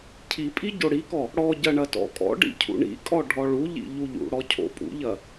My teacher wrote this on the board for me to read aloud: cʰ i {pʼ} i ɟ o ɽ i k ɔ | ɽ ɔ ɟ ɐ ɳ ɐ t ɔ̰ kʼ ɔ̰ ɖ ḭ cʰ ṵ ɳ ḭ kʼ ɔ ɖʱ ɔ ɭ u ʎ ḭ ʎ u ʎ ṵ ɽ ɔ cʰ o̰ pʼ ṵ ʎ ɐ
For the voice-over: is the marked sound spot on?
yes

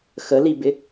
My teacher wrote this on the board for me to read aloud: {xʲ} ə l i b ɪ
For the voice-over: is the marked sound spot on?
no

